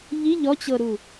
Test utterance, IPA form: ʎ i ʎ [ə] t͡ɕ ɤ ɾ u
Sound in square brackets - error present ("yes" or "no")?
yes